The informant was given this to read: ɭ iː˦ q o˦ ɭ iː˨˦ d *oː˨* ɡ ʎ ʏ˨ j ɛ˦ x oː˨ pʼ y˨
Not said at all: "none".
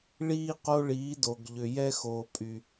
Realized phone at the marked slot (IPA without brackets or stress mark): o˨